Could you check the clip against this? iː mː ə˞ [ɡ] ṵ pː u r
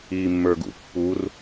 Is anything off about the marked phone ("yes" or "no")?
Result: no